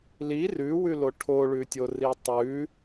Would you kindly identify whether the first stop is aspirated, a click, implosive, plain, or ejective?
aspirated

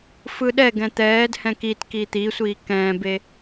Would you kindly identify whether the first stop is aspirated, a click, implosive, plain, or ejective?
implosive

